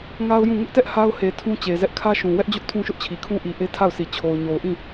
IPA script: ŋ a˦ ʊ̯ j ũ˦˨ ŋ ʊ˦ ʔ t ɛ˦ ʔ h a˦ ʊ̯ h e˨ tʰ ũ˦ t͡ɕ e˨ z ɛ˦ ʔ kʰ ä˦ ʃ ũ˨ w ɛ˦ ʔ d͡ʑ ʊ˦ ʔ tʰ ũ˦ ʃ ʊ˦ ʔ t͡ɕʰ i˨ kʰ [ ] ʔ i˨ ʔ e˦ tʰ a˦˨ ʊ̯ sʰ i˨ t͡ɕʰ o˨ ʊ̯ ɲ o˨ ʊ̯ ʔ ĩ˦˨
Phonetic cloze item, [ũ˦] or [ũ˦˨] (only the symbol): ũ˦